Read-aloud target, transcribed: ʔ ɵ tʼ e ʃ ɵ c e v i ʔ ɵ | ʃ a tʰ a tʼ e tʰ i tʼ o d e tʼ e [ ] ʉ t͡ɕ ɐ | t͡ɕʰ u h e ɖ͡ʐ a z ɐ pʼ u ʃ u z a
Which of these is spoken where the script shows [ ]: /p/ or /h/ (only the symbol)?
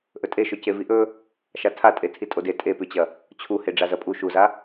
p